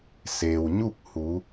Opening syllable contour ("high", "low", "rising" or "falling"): low